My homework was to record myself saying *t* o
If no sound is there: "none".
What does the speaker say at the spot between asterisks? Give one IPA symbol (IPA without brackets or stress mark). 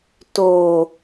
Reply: t